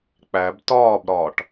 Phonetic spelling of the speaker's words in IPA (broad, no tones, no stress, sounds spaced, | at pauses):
k͡p æ b t ɒː b ɾ ɒː ʈ